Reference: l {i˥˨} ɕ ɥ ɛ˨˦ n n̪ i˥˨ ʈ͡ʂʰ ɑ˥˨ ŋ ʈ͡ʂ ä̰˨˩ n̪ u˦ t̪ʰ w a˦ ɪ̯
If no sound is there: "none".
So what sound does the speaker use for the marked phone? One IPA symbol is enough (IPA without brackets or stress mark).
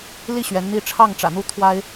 i˥˨